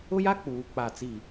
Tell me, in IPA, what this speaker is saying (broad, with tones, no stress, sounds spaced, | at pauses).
ʊ˦ j a˦ k͡p uː˨ k͡p a˦˨ t͡s i˦˨